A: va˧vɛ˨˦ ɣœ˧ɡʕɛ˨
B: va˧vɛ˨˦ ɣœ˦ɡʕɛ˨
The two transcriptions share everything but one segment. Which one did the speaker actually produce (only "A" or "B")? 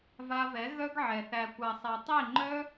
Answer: B